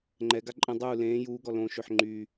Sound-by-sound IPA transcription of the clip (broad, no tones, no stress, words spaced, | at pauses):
ŋ͡ǃɛɡa ǃʼə̃ dˤuː lẽː juːɡɔ lõʃøħ ŋ͡ǃy